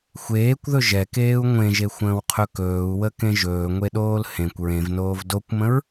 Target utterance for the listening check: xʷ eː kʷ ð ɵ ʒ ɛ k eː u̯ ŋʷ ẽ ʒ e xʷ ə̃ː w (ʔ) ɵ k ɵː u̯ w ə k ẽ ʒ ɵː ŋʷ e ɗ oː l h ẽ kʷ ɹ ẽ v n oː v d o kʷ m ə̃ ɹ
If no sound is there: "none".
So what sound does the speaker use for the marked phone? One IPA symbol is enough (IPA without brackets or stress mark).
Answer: qʰ